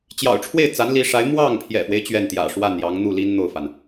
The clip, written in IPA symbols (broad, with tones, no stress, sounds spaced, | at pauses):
t͡ɕ j ɑ̰˨˩ ʊ̯ ʈ͡ʂʰ w e˥˩ ɪ̯ t͡s a˧˥ n l i˧˥ ʂ a˧˥ ɪ̯ m w ɑ˥˩ ŋ pʰ j ɛ̰˨˩ f w e˦ ɪ̯ t͡ɕ ɥ ɛ˥˩ n t̪ j ä̰˨˩ ʂ w a˥˩ n j ɑ˧˥ ŋ n̪ u˥˩ l i˥ n n̪ o˥˩ ʊ̯ f a˩ n